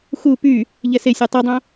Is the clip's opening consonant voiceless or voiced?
voiceless